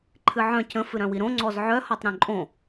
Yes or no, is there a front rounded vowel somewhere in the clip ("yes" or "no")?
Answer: yes